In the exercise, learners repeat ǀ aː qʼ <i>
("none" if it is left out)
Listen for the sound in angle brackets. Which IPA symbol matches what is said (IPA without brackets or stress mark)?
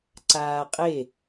e